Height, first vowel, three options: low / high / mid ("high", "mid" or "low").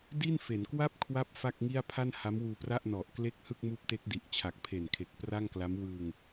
high